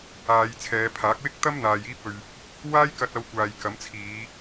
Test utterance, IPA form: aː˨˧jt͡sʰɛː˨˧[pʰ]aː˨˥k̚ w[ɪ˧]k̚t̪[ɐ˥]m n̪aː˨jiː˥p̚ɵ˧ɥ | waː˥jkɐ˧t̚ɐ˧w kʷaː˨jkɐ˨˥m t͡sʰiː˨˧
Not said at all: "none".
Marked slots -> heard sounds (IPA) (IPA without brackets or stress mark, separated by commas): pʰ, ɪ˥, ɐ˥